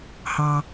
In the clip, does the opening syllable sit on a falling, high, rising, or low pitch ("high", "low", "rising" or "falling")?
low